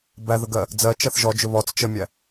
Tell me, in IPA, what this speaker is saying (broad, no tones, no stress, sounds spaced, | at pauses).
b æ ð ə ɡ ɜ | d͡z ɜ t͡ʃ ɜ θ ʒ ɔ d͡ʒ ʊ β ɔ t͡s t͡ʃ ə mʲ æ